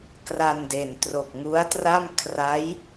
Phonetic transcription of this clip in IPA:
kra˧n de˨˩n tro˨˩k̚ŋu˦˥a̯tra˥˩m kʰra˦˥j

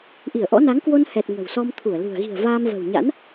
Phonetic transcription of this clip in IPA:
ʔi˧˩ə̯ʔɔ̰˧˥ na˨˦ŋkwo˧nhɛ˨˩t̚ ŋə̤˨˩wsɔ˧mt̪ʰu˧˩ə̯ lṳ˨˩ə̯ ɣi̤˨˩ə̯ vaː˧mvə̤˨˩wɲa̰˧˥n

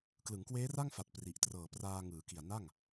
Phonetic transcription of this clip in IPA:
klɯ˩˦ŋkweː˦˥ra˥˩ŋfa˨˩t̚ pri˨˩ʔtrɤː˨˩praː˧ ŋɯː˩˦ki˨˩a̯ na˥˩ŋ

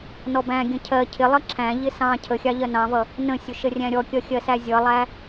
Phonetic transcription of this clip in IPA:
nɔbæ̃ɡʲə̃ cʰɜ cʰɪlˠʌ ǁʰæ̃ʎɪ sɑ̃ cʰəxʲɑ ʎɜnɑ̃vʌ | nə̃sʲʊ ʃərʲæ̃ɾʲɔkʲʌ xʲɜsæzʲʌlˠæ

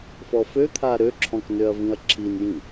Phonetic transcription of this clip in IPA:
fɔføt̪ʰa ɾøǁʰɔ̃knøɐ̯vĩɐ̯ ǁʰinjĩ

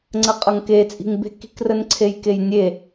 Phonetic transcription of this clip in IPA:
ŋ͡ǀəqʼʌŋket͡sʼi̤ŋ be̤ki̤krən ǀʰejkejnʲe

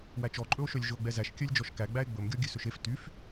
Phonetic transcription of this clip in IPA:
wæt͡ʃɔǃʼɵo̯ʃœlʲ ʒɵo̯ɡ͡bɛzæʃ kʲœlʲd͡ʒɔʃkæ ɡ͡bæe̯ɡ͡bɵm ɡʲɔɡʲʉsɵʃef tyf

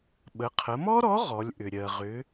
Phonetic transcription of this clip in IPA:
ɓə˩˧qʰə˩˧mɔ˥ɾɔ˧˥ ʁɔ˩˧lʲʔʏ˩ ɾʲɜ˩ʁʏ˩˧

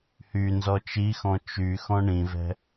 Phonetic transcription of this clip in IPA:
hy nzɔt͡ʃixɔ̃ t͡ʃy xɔ̃ɳĩvɛ̤

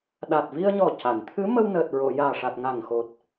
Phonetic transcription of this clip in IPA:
ɗa˨˩t̚vi˧ə̯ɲɔ˨˩ ca˨˩˨n t̪ʰɨ˧˥mə˧wnəː˨˩t̚ ɹo˨˩˨ jaː˨˩ʂa˨˩t̚ ŋa˨˩ŋxo˨˩t̚

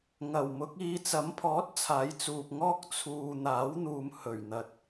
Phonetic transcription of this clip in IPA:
ŋɐ˨˩wmʊ˨˥k̚iː˧ t͡sɐ˨˥mpʰɔː˨˥t̚ t͡sʰaː˨˥jt͡suː˨p̚ŋɔː˥k̚ t͡sʰuː˧ n̪aː˨˥wn̪uː˨m hɵ˨˩ɥn̪ɐ˨t̚

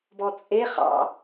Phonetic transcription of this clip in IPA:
bɔt͡sʼe χɑ̰

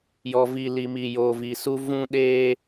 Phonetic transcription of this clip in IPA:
jɔ˨vi˨li˨ mi˨joː˨vi˨su˦ vũ˦ ɗeː˦

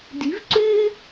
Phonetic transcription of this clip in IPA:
di̤˩˥v ǀʉ˥

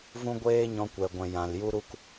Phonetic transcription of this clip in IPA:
vũ˦ɡʷeː˦ ɲɔ̃˧kʷɛ˨ɡʷɛ̃˨ jã˨l ju˦ɾu˦k

